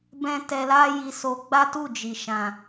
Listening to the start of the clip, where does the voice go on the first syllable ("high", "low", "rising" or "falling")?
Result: high